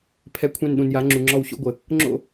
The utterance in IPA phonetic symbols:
pʰ ɛ˧˩ kʷʰ ɛ̃˧˩ n ɗ ũ˩ n j a˩˧ ŋ͡ǁ u˩ ŋ͡ǁ ɔ˧˩ w ɕ o̰˥˧ ɡʷ ə˩ | ŋ͡ǁ o̰˥˧

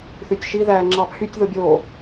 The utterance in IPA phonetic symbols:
θ y tʲ ʃ i ð æː ŋ͡ǁ ɑ pʰ y tʲ ð o bʲ oː

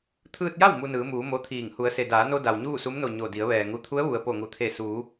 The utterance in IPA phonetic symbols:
t̪ʰ ɯː˧ t̚ j a˥˨ w m u˧ n ɯː˩˧ m uː˩˧ m o˧˥ t̪ʰ iː˧˩ ŋ h u˩˧ ə̯ s e˩ d aː˩˧ n o˧ d a˩ w ɲ uː˥˨ s u˧˥ m n o˧˩ ɲ o˧˩ d i˩˧ ə̯ ʋ ɛː˩ ŋ u˩˧ t̪ʰ u˧˥ ə̯ ʋ u˩ ə̯ p o˧˩ ŋ u˩ t̪ʰ e˧˩ s uː˩˧

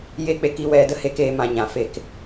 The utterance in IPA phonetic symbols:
j e˦ k͡p e˧ k i˧ w ɛ˧ d ə˦ h e˦ k eː˧ m ã˧ ɲ ã˨ f e˧ k

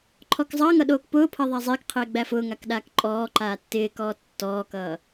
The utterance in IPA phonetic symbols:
ǃʰ ɔ k zˤ ʌː ŋ ʌ ɗ oː k p ʊː pʰ ʌ ðˤ æ zˤ ɪː k qʰ ɪː ɡ͡b æ f ʊː ŋ a k ɗ aː k ǃʼ ɔː ǃ aː tː ɪː k ɔː tː ɔː k ʌː

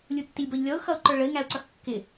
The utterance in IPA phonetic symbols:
lʲ u tː i lʲ b ɔ ʎ lʲ ɔ ʊ̯ x ʌ ʊ̯ ǃ ə˞ ɭ ə ɪ̯ ŋ æ ʊ̯ ǀ ʌ x kː ɪ

